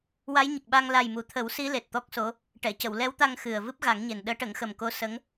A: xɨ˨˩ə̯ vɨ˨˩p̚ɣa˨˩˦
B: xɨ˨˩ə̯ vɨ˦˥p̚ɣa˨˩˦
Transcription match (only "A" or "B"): B